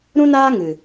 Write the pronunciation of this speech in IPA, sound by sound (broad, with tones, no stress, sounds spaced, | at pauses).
ɾ ũ˦ n aː˦ ŋ ɨ˨